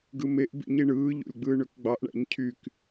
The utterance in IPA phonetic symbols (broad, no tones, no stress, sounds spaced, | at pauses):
ɡ ɯ m e ʔ b ḭ ɲ i ɳ ɯː ʎ o̰ lʲ ɡ͡b ɯː ɳ ø k ɡ͡b ɑ ʔ ɳ æ̰ ɲ cʰ y k